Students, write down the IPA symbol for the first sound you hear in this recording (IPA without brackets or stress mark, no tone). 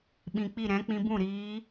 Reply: ɓ